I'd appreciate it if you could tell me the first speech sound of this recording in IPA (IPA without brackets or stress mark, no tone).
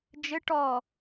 d͡ʒ